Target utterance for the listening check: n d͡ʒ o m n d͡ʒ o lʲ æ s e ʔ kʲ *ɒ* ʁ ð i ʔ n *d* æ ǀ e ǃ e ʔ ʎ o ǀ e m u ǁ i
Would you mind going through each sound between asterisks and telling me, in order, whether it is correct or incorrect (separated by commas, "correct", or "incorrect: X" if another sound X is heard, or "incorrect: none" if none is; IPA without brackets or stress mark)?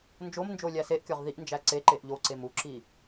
correct, incorrect: d͡ʒ